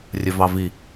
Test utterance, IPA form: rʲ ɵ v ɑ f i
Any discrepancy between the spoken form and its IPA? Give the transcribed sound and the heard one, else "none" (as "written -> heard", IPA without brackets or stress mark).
f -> v